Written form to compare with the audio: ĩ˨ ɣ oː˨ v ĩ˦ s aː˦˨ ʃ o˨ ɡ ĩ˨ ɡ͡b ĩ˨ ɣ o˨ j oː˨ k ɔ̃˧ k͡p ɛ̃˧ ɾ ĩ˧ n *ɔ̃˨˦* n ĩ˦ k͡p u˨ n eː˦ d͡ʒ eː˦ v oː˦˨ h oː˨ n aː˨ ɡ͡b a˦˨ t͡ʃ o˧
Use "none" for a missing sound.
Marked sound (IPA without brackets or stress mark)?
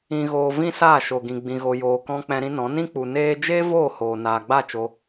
ɔ̃˨˦